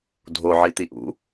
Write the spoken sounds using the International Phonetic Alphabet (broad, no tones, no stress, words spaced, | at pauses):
dʱoʕi t̪iʔṵ